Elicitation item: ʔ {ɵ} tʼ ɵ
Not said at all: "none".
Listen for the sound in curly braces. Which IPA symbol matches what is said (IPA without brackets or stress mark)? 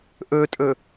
ɵ